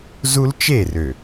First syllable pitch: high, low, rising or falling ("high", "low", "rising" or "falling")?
high